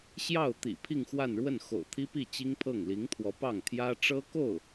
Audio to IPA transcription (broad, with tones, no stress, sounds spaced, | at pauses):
ɕ j ɑ˥˩ ʊ̯ t̪ ḭ˨˩ pʰ i˥˧ ŋ x w a˥˧ n ɻ w ə˥˩ n x o̰˨˩ ʊ̯ t̪ʰ i˥ p i˥˩ t͡ɕ i˥ ŋ pʰ ɤ˥˩ ŋ l i˧˥ ŋ t̪ʰ w ɔ˧˥ p ɑ˥˩ ŋ t̪ʰ j ä˥ ʈ͡ʂ ɤ˥ k o˥˩ ʊ̯